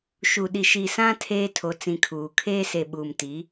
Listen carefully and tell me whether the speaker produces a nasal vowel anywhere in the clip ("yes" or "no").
yes